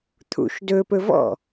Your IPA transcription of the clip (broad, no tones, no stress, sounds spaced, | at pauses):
t̪ʰ ṵ ʃ d ɵ p ɵ v ɔ̰